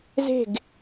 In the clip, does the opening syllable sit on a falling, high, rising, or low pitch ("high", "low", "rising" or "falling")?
falling